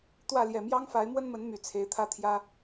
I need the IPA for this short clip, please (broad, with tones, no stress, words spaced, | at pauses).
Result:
t̪wä˥˨ljɛ˨˩ mjɑ˦ŋfa˨˦ɪ̯mwə˦nmə˨˦n my˨˩t͡sʰe˨˦ɪ̯t̪ʰä˦t̪ʰjä˦